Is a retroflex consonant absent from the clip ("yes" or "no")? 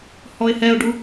no